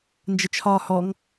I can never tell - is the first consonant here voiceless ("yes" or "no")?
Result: no